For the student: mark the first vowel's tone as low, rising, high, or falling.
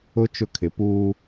high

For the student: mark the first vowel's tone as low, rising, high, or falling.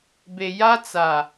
low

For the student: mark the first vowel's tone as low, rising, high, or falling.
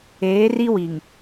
rising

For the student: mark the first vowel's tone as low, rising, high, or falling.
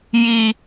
high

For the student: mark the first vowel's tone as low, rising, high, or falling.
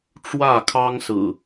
falling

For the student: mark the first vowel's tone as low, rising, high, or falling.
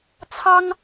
high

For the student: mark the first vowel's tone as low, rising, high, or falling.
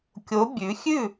rising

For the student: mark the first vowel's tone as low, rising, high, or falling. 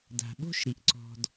low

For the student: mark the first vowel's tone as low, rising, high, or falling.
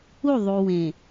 falling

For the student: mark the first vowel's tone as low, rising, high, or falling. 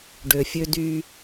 low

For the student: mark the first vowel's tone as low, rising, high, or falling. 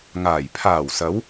low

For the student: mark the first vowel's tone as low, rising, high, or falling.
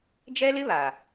high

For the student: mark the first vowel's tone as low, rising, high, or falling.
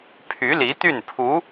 rising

